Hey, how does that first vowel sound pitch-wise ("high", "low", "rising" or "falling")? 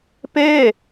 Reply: falling